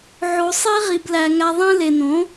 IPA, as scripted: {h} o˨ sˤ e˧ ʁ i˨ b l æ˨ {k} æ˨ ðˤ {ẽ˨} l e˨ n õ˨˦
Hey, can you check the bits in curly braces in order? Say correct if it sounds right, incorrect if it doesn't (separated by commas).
incorrect, incorrect, correct